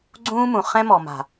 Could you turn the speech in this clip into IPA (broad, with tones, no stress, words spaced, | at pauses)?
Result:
ɡ͡ǀũː˦mũ˨ χɛ̃˦mɔ˨ma̤˨